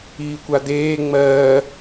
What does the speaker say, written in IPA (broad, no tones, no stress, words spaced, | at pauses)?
iːkʷad̪eː ŋ͡mɜː